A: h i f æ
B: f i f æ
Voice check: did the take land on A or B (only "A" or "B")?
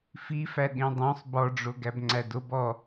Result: B